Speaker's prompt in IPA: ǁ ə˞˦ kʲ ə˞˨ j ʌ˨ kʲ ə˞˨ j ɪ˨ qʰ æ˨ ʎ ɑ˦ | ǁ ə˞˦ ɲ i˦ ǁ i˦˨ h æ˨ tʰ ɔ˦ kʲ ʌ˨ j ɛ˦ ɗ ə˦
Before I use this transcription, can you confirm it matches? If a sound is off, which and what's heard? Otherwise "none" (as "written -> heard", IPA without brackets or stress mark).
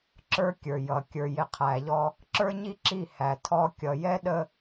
ɑ˦ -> ɔ˦